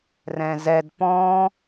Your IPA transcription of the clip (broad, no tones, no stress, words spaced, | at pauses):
rɛ̃zɛd pɔ̃